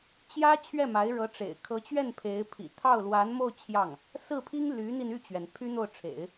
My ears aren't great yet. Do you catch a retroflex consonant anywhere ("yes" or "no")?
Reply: yes